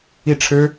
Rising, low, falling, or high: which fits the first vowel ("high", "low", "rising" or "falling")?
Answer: falling